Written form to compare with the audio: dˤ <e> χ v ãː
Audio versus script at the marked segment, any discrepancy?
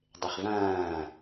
no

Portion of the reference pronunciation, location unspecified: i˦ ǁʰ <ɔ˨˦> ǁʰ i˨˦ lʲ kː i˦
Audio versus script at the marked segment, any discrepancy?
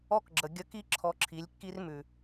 yes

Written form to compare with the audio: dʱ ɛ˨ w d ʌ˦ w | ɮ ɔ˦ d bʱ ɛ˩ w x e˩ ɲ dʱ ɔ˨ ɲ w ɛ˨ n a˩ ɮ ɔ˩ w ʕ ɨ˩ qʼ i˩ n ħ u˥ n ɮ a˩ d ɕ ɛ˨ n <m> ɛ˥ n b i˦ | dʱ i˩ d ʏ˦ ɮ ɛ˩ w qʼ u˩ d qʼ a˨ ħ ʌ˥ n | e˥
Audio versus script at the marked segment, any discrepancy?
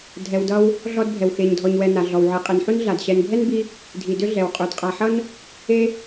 yes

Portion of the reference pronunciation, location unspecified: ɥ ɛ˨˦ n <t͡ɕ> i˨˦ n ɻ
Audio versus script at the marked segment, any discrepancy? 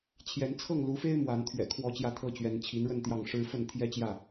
yes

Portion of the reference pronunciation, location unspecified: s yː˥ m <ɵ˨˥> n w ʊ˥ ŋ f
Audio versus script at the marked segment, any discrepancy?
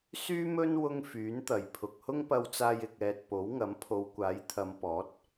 yes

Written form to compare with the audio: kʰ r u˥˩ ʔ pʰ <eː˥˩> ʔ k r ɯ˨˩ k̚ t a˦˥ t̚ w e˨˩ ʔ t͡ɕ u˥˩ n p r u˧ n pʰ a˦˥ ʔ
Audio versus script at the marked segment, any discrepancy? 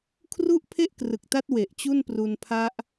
yes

